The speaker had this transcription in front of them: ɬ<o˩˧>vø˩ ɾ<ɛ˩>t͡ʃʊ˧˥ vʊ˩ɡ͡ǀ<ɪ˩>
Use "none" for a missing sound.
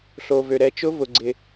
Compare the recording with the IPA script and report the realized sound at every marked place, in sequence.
o˩, ɛ˩˧, ɪ˩

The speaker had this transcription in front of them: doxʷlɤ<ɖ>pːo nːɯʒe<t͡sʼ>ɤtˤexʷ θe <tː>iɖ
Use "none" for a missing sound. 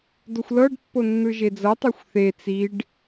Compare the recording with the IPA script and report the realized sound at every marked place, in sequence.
ɖ, d͡z, t͡s

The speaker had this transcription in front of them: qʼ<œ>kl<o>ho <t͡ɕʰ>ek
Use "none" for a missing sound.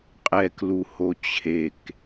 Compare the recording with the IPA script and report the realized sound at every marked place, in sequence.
ɛ, u, t͡ɕʰ

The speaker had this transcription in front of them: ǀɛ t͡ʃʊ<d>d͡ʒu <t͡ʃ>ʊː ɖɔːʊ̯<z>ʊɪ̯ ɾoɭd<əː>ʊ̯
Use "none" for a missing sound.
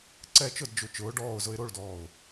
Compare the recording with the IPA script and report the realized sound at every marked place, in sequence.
d, t͡ʃ, z, ɔː

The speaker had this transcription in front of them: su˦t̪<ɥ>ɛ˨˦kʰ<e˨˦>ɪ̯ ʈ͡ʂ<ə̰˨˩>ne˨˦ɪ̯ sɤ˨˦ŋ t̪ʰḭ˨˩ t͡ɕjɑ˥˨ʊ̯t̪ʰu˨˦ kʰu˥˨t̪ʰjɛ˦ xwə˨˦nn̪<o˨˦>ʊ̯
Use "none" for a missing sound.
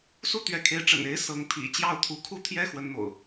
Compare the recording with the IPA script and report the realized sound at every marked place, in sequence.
ɥ, e˨˦, ə̰˨˩, o̰˨˩

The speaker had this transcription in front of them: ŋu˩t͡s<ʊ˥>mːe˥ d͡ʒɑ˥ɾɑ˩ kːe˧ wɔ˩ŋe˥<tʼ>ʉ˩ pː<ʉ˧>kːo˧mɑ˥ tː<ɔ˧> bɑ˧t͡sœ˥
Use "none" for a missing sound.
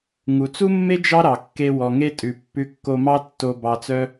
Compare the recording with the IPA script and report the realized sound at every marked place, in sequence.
u˥, tʼ, ʉ˧, o˧

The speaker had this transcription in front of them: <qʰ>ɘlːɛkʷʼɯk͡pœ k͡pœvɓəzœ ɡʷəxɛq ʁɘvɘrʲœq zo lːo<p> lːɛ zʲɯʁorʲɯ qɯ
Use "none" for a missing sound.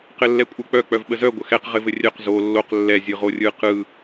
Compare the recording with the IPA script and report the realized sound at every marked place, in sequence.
q, q

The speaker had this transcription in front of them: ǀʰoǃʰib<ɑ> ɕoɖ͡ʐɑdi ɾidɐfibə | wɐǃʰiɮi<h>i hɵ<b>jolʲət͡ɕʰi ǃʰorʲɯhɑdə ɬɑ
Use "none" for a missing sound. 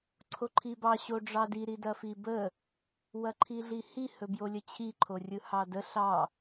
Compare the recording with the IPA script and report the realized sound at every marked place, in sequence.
ɑ, h, b

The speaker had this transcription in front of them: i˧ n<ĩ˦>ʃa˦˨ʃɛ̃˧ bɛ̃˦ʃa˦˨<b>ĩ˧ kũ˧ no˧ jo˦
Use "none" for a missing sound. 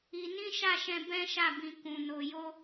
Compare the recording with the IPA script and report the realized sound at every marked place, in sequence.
ĩ˦, b

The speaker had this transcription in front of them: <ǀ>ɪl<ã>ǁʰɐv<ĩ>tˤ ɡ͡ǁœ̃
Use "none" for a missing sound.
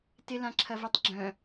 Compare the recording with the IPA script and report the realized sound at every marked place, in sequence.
t, ã, i

